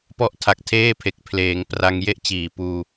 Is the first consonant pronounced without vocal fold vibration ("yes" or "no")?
yes